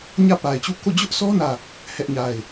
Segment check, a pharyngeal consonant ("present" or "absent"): absent